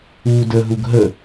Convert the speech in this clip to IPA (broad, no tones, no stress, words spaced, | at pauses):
uːdəɦuɡ ɦə